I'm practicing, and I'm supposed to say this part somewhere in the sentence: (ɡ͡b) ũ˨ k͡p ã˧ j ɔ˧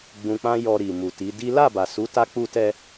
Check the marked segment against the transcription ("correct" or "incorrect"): correct